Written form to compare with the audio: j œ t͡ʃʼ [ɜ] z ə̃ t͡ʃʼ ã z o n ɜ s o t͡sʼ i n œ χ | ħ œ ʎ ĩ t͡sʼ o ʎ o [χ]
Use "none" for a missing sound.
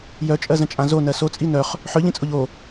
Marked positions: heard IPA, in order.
ɜ, none

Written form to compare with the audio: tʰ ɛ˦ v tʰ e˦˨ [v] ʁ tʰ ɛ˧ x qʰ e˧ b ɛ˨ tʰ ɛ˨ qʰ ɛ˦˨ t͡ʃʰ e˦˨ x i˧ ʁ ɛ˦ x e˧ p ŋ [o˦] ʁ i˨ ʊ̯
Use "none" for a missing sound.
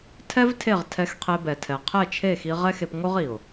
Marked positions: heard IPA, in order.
none, o˦

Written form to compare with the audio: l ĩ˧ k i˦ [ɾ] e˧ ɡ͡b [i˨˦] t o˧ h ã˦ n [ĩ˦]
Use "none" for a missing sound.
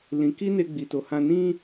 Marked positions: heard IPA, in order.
n, i˧, ĩ˦

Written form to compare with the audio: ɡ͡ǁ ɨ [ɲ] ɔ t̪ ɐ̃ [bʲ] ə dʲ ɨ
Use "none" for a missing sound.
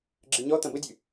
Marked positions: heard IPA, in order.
ɲ, b

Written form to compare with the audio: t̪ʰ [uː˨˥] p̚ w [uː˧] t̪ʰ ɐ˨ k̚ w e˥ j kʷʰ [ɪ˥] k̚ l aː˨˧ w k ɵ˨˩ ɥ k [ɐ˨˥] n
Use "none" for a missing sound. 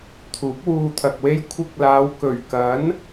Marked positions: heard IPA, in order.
uː˨˥, uː˧, ɪ˧, ɐ˨˥

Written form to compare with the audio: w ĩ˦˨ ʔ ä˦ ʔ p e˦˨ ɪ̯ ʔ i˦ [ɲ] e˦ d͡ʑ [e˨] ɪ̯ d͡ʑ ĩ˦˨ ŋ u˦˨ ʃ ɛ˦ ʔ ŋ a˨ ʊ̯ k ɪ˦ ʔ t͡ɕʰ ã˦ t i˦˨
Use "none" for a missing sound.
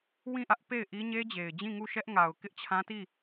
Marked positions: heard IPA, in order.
ɲ, e˨

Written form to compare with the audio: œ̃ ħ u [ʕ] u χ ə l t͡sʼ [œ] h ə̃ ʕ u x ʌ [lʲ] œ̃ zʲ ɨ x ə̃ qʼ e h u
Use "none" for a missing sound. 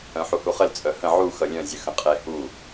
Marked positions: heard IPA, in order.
h, œ, lʲ

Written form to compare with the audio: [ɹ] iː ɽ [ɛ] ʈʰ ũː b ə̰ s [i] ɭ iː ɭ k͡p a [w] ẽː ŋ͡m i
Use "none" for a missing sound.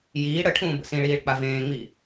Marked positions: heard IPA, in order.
j, ə, ĩ, v

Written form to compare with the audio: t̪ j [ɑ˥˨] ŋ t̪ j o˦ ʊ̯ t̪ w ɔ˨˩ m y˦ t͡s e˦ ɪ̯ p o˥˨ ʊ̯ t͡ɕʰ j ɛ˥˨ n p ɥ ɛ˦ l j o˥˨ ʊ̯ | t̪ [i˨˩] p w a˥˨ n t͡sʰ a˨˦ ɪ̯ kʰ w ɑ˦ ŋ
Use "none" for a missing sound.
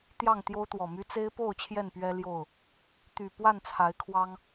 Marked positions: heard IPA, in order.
ɑ˥˨, y˨˩

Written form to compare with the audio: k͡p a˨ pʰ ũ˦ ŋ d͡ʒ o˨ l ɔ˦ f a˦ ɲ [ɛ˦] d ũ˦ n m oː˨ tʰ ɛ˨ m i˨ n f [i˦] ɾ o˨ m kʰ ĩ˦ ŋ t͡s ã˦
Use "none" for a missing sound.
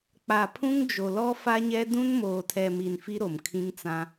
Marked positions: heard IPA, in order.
ɛ˦, i˦

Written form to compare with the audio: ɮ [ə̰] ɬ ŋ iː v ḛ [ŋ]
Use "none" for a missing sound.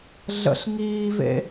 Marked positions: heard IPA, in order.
ə̰, none

